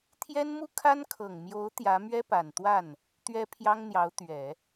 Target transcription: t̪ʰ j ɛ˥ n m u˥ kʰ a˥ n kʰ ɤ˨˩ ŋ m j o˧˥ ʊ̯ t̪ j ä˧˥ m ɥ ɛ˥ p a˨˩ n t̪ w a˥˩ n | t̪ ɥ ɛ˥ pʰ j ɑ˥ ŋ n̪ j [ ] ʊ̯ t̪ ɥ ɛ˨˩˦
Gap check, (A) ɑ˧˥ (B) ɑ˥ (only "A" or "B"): A